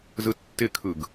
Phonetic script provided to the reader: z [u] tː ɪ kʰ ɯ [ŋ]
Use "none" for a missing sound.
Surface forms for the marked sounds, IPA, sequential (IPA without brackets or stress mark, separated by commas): ɯ, ɡ